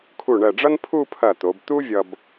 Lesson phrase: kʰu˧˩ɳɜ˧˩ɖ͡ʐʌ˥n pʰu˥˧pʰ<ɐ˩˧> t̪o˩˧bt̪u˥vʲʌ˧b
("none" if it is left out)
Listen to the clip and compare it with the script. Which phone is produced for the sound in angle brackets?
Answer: ɐ˧˩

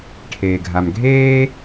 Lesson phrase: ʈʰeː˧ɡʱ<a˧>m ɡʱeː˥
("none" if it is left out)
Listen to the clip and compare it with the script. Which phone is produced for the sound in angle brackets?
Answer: a˧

